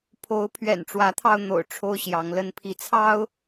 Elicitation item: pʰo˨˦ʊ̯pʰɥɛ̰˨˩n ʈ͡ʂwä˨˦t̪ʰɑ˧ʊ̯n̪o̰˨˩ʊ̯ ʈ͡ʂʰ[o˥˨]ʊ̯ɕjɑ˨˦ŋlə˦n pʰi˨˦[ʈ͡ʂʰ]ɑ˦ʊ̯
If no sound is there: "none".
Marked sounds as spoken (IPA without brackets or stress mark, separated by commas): o˦, t͡sʰ